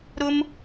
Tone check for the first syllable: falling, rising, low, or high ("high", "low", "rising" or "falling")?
high